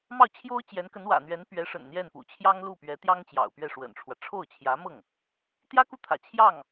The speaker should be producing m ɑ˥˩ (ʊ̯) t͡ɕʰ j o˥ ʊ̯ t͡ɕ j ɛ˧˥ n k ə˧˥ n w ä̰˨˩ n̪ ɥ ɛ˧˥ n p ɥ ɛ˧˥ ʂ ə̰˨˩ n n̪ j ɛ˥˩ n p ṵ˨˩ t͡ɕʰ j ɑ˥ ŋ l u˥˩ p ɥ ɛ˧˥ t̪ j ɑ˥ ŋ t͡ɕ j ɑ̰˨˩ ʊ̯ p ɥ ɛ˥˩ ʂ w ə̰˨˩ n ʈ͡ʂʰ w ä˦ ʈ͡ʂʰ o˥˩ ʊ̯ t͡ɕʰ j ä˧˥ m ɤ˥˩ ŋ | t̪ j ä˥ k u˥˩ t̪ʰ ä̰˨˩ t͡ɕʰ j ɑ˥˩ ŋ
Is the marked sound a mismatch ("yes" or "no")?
no